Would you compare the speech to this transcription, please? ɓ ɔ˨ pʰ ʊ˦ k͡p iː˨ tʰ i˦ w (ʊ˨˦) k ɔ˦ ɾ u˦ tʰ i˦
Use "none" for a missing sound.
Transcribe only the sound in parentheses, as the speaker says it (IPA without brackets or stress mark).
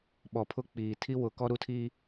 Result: ʊ˨˦